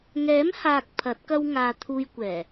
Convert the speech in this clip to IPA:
ŋ ɛː˨˥ m h aː˨ k̚ pʰ ɐ˨˥ t̚ k ɐ˥ w ŋ aː˧ t̪ʰ uː˧ j kʷ ɛː˨˩

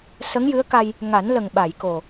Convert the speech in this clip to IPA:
s ə˧˥ ŋ j ɨ˧˥ ə̯ k a˧ j | ŋ a˨˩˦ n l ə˨˩ ŋ ɓ a˨˩˨ j k o˨˩

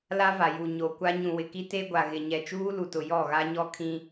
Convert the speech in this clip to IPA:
l a˦ v a˨ j u˨ ɲ o˨ kʷ a˦ ɲ ũ˨ w ɪ˨ k i˦ t e˦ ɡʷ a˨ ɣ ɪ˨ ɲ ɛ˨ t͡ʃ uː˦ l u˨ t ʊ˨ j ɔ˦˨ ɣ a˦ ɲ ɔ˦ kʰ ĩ˦

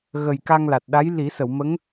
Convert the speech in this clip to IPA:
ɣ ə˨˩ j k a˧ ŋ l a˨˩ t̚ ɗ a˧˥ j l i˨˩˦ s ə˨˩˨ w m ə˧˥ ŋ

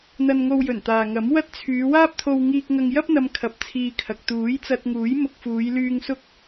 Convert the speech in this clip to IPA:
n̪ ɐ˧ n ŋ o˧ w j ɵ˨˩ n t̪ aː˨ ŋ ɐ˨˥ m w ɐ˥ t̚ t͡sʰ yː˨˧ w aː˥ p̚ t̪ʰ o˧ w ŋ iː˧ k̚ ŋ ɐ˧ ŋ j ɐ˥ p̚ n̪ ɐ˧ m kʰ ɐ˧ p̚ t͡sʰ iː˧ kʰ ɐ˨ k̚ t̪ uː˨˥ j t͡s ɐ˧ t̚ ŋ uː˨˥ j m ʊ˧ k̚ f uː˨˧ j l yː˧ ŋ s ʊ˥ k̚

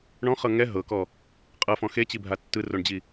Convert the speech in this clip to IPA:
ɳ ɔ̃ χ ɤ ŋ ɛ ɦ ɤ k ɔ | qʼ ɤ f ɔ̃ x e t͡ɕ i bʱ a tː ɯ r o ɳ d͡ʑ i

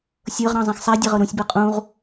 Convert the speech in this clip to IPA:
sʲ ɤ ʁ ɾ ɑ̃ zˤ ɛ̃ x sˤ ɛ dʲ ɛ ʁ ɤ ɾ ũ sʲ b ɤ qʼ ũ ʁ

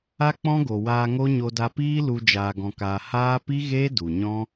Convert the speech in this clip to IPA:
a˦ k͡p ɔ̃˦ ɡ o˨ w aː˧ ŋ o˦ ɲ o˧ d a˧ p iː˦ l u˧ d͡ʒ aː˧ ɡ ɔ̃˧ k aː˧ h aː˦ p i˦ ɣ eː˦ d u˨ ɲ ɔ̃˦

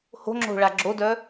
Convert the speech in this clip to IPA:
h o̤ ŋ͡ǁ o̤ ɭ a ɡ͡ǁ o d œ

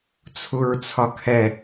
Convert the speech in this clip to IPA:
t͡sʰ u ɹ t͡sʰ ɒ kʰ ɛ

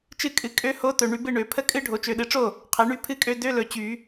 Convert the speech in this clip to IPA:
t͡ʃ ɨ˦˥ kʼ ɨ˩˥ kʼ ø˦˥ h o˧˥˧ t ɵ˨ ɳ y˨˩˦ b ɨ˥˩ ɳ ø˨˩˦ pʰ ə˦˥ kʼ ɨ˦˥ ɖʱ o˩˥ t͡ʃ ø˨ ɗ ɨ˩˥ ʈ͡ʂ o˥˩ | qʰ ɛ˩˥ ɳ y˧˥˧ pʰ ɨ˦˥ kʼ ø˧˥˧ d ø˧˥˧ l ɵ˨˩˦ t͡ɕ y˨˩˦

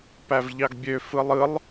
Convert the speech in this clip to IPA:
p æ v ʎ ɑ ɡ bʲ ø f ɯ lˠ ɯ lˠ

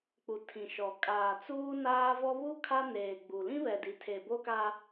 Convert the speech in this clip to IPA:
k͡p u˨ tʰ ĩ˨ ʃ ɔ˨ kʼ aː˨ t͡s uː˦ n aː˦ v ɔ˦ β u˦ kʰ a˦ n eː˨ ɡ͡b u˨ l ĩ˦ β ɛ˨ d i˨ tʰ e˨ b o˦ k a˦

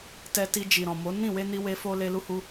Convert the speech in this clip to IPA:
t ɛ˧ t i˧ d͡ʒ i˨ ɾ ɔ̃˨ m o˨˦ n ĩ˦˨ w e˧ n i˧ w e˧ f o˦ l e˦ l u˦ h u˦

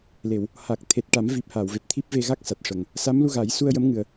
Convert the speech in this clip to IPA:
l e˨˩˨ w | h a˨˩ k̚ t̪ʰ e˨˩ t̚ ʈ a˨˩˦ m v i˨˩ p̚ h aː˨˩˨ w v e˨˩ p̚ t̪ʰ i˦˥ p̚ v e˧ ɣ a˦˥ k̚ s a˨˩ t̚ ʂ ə˨˩ ŋ | s a˧˥ m l u˧ ɣ a˨˩˦ j s u˧ ə̯ j ə˧˥ m ŋ ɨ˨˩ ə̯

